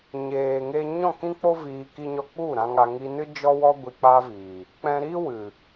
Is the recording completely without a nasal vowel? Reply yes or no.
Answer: no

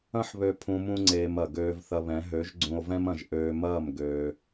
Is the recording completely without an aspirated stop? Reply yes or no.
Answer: no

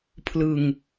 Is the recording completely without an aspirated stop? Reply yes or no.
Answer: no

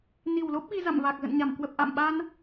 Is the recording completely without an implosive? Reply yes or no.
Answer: no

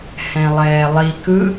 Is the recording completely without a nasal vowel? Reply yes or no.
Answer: no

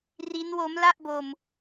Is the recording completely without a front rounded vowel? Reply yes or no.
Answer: yes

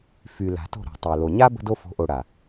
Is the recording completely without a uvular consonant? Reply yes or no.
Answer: yes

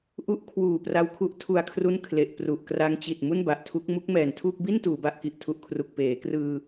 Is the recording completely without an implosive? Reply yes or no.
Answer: yes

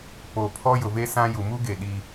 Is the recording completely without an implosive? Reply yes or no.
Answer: no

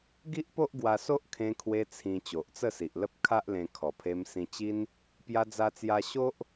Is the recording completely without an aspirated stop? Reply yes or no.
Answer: no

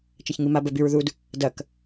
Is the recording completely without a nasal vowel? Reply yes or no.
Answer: yes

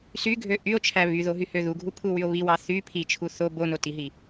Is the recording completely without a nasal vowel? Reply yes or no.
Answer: yes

